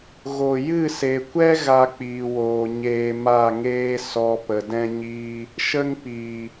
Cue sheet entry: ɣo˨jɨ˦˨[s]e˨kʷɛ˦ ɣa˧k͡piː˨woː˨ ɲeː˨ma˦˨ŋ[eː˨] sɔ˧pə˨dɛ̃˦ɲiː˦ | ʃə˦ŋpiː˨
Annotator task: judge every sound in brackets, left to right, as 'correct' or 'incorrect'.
correct, incorrect

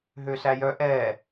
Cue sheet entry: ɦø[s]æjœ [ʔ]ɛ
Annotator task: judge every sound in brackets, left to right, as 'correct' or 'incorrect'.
correct, correct

